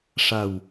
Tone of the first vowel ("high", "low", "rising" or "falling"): low